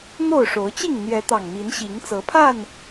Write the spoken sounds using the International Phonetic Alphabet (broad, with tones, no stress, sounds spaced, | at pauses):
n̪ o˥˨ ʊ̯ ʂ o˨˦ ʊ̯ t͡ɕ i˥˨ ŋ n̪ j ɛ˨˦ t̪ ɑ˨˩ ŋ m i˨˦ n ɕ i˨˦ ŋ t͡s ɤ˨˦ pʰ a˥˨ n